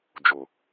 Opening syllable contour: low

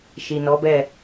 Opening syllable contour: low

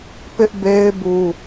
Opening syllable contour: high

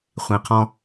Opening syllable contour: low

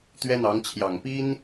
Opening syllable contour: high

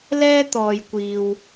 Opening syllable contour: high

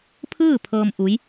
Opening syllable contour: falling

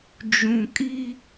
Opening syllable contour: low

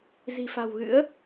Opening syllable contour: low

